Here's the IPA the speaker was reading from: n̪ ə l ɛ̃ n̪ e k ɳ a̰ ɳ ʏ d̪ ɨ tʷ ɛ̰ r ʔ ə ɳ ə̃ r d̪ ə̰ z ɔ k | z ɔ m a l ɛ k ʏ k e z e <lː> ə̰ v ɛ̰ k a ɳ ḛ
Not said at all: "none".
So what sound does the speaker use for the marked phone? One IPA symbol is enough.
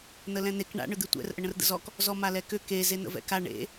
n̪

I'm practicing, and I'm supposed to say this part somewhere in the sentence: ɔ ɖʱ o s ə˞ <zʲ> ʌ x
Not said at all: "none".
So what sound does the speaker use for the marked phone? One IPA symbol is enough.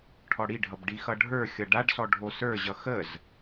ʑ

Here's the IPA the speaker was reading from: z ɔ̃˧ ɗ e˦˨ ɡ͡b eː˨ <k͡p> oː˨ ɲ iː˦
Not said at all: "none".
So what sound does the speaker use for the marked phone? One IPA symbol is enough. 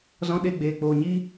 k͡p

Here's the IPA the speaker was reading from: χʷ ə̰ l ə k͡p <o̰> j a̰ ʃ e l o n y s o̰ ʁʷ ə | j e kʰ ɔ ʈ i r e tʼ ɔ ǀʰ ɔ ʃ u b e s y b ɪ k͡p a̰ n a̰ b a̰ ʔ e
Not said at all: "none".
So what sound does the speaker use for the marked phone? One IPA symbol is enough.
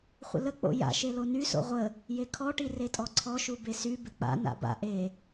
o̰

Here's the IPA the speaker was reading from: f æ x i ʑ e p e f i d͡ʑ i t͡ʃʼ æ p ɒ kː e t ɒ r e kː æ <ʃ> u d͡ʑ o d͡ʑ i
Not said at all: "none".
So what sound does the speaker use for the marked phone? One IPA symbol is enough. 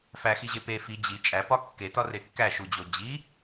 ʃ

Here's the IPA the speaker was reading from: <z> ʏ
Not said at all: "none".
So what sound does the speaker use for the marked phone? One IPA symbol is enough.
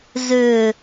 z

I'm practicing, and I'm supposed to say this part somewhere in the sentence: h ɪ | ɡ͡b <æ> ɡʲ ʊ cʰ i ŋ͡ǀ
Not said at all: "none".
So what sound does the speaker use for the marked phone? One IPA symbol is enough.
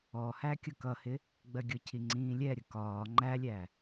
ɜ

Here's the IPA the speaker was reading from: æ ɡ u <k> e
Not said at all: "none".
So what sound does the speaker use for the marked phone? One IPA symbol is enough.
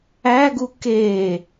k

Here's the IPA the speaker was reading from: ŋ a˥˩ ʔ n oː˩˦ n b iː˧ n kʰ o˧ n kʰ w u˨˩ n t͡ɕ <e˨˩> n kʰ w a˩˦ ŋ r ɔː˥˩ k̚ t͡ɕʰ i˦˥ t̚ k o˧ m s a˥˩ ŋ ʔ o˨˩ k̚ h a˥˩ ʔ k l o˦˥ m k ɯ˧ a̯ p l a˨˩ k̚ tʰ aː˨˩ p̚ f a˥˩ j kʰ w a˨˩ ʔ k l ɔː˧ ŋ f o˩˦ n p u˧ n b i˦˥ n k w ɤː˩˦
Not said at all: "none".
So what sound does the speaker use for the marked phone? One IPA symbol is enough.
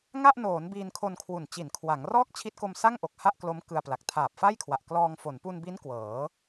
i˨˩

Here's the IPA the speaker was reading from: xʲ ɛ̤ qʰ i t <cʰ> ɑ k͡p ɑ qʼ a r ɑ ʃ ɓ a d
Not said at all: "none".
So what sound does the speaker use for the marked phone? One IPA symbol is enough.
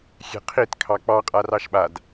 kʰ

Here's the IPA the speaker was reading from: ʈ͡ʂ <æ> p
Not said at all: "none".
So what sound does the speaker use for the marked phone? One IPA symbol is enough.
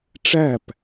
æ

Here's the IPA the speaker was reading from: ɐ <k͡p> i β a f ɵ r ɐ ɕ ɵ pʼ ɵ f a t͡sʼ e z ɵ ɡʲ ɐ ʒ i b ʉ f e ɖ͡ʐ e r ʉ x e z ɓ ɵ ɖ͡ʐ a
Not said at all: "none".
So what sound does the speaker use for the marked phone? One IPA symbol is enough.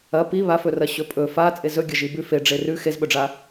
p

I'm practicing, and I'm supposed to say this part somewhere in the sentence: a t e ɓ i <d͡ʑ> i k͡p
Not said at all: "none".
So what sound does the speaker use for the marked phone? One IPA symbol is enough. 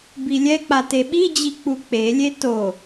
d͡ʑ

